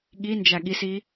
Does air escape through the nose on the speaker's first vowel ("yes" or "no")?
no